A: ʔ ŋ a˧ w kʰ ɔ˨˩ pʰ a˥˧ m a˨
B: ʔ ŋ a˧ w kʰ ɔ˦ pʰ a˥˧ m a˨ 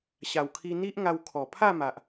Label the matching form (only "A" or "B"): A